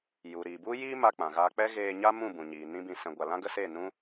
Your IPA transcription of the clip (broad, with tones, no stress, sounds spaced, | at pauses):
j u˨ ɾ iː˨ b u˦ j iː˦ m a˧ k͡p ã˨ ɣ aː˧ k͡p ɛ˦ ɣ eː˧ ɲ a˦ m ũ˦˨ b ũ˨ ɲ iː˨ n ĩ˦ b ĩ˧ s ɛ̃˧ ɡʷ a˧ l ã˦ ɡ ə˦ s eː˦˨ n ũ˦